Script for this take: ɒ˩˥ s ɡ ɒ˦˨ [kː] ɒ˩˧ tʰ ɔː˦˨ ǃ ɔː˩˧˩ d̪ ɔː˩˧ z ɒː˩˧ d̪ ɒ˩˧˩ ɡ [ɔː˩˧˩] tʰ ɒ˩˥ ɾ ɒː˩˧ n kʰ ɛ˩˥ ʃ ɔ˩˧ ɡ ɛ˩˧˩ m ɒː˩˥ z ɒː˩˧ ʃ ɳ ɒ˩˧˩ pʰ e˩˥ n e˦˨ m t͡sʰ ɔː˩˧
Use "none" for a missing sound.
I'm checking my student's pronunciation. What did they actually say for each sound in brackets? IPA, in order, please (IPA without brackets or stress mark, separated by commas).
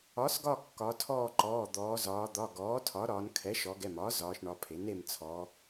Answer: kː, ɔː˩˥